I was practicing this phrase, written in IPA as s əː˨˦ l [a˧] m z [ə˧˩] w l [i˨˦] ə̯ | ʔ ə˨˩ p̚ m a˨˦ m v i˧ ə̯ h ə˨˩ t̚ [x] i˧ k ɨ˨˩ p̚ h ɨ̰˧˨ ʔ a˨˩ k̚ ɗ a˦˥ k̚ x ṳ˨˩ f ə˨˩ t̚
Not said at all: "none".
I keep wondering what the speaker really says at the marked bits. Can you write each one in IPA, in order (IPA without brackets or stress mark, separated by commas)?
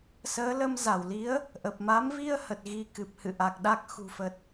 ə˧, a˧˩, i˨˦, ɣ